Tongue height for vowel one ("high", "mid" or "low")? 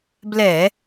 mid